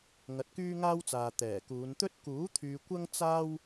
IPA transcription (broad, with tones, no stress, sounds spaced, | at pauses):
ŋ ɐ˨˥ t̚ k yː˥ ŋ aː˥ w t͡s aː˨ t̪ ɛː˨˩ k uː˨˧ n t̪ ɵ˥ t̚ k uː˨˥ t̪ʰ yː˧ kʷ ɐ˥ ŋ t͡s aː˥ w